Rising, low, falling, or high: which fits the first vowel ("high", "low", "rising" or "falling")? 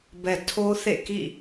low